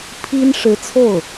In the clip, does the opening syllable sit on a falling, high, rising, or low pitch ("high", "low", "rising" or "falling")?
high